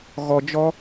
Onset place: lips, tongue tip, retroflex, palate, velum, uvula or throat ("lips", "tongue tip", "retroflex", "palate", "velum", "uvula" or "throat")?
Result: velum